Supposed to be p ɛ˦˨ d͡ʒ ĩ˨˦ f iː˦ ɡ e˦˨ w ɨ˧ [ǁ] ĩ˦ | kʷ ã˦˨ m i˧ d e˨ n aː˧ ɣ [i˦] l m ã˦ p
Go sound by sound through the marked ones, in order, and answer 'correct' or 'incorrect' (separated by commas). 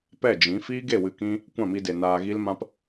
incorrect, correct